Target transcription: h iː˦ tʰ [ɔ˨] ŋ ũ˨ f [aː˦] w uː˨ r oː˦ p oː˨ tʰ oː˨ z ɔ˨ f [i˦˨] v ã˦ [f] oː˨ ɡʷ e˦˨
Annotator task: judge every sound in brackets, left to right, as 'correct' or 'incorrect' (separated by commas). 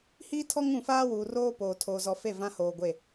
incorrect, correct, incorrect, incorrect